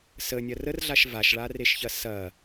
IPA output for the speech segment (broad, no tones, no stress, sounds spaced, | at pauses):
s ə nʲ ɐ r ə r ɮ a ʃ v a ʃ ɭ a r e ʃ ç ɐ s ɐ